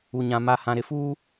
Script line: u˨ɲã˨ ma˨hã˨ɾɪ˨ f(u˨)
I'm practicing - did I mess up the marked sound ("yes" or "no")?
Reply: yes